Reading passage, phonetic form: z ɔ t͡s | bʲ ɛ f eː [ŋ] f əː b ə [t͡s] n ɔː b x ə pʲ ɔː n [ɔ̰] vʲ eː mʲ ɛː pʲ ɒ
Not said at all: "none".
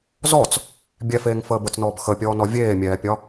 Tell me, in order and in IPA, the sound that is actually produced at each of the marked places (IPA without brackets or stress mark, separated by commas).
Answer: ŋ, t͡s, ɔ